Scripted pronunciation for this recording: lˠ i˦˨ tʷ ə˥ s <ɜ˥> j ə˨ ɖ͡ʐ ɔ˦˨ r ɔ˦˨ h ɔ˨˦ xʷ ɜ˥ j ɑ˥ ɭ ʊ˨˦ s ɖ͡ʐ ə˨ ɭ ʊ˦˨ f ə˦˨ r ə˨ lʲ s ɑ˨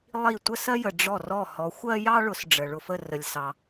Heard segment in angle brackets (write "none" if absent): ɜ˥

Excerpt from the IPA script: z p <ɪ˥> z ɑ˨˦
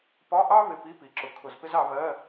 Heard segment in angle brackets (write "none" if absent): ɪ˥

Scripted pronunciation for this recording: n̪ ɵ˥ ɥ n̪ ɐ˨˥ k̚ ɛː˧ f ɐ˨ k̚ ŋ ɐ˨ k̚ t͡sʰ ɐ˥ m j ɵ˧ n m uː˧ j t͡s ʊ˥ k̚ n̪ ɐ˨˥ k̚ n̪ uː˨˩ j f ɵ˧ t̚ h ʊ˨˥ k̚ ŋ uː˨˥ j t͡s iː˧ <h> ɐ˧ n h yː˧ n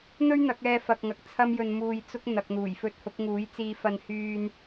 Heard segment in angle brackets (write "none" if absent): f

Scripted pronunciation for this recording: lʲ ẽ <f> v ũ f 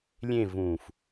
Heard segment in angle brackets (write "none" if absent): none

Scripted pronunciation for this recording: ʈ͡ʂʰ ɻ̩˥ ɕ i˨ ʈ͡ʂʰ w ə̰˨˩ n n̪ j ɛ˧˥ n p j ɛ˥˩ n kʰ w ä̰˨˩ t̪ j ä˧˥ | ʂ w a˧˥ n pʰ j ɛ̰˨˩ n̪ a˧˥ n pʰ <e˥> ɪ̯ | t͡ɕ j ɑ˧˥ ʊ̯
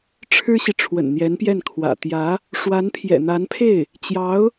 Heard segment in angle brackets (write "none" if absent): e˥˩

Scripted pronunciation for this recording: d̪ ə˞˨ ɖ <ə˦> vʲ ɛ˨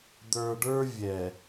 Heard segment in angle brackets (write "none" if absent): ə˞˦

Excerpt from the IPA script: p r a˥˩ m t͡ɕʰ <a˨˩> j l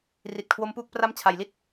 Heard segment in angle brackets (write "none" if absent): a˨˩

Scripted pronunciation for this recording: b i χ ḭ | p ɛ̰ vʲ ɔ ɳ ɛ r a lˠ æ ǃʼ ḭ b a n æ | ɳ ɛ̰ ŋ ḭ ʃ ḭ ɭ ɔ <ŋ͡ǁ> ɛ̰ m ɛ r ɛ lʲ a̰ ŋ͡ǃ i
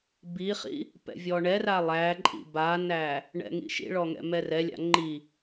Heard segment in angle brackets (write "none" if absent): ŋ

